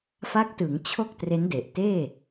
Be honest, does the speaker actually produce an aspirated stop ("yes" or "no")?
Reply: yes